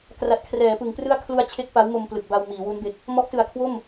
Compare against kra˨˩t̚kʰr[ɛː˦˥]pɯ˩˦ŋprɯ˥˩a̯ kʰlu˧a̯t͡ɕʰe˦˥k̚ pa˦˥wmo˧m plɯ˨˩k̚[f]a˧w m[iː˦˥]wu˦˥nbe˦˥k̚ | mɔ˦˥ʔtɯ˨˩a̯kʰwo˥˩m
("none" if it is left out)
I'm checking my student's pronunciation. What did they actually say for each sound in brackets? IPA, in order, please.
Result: ɛː˩˦, b, iː˩˦

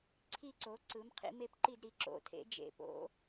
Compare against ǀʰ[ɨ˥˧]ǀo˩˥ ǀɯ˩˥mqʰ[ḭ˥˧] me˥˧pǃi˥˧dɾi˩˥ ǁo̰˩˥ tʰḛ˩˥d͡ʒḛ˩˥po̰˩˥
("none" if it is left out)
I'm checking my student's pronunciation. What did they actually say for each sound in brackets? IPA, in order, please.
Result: i˥˧, ḭ˩˥

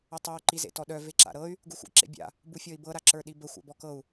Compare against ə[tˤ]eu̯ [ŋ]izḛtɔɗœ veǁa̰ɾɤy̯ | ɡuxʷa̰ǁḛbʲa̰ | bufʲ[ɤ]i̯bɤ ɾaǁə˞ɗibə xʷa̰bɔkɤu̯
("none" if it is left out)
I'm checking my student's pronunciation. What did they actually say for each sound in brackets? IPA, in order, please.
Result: tˤ, ǃ, ɔ

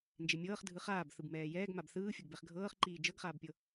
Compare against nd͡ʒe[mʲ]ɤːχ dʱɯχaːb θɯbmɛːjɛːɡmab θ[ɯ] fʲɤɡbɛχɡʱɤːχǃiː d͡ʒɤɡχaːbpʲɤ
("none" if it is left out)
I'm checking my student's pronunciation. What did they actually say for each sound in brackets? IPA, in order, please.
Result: mʲ, ɯː

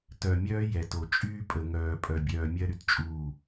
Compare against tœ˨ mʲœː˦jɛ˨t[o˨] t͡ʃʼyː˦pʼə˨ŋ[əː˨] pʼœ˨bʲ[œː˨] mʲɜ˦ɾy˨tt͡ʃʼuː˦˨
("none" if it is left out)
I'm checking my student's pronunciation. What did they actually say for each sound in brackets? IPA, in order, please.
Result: o˨, œː˨, œː˨

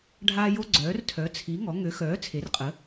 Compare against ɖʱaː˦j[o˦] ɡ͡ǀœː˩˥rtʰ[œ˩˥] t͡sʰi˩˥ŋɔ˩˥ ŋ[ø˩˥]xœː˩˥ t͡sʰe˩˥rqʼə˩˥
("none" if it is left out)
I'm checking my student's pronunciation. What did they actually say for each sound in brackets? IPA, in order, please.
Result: o˦, œ˩˥, ø˩˥

